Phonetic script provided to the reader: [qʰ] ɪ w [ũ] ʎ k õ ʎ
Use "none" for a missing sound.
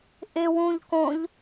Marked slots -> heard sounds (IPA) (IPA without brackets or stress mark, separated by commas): ʔ, ũ